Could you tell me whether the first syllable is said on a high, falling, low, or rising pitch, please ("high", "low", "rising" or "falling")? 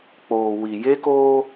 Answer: low